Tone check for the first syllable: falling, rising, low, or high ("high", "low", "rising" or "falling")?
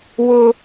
high